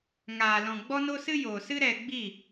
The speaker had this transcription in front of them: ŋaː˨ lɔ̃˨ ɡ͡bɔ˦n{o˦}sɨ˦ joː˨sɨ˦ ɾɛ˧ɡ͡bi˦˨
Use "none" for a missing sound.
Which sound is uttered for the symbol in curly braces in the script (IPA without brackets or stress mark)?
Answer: o˦